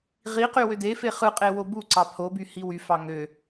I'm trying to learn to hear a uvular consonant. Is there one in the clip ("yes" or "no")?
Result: yes